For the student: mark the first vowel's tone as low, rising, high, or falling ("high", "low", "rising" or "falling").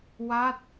falling